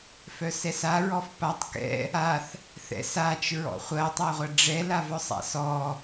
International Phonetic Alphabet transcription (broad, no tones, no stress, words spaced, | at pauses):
fœsɛsa ɹɔfpatˤ kɛ̰ | aθ | θɛ̰sat͡ʃ ɹɔ̰χʷɐ tˤaʁʷɐɖ͡ʐɛ lavœsˤa̰sɔ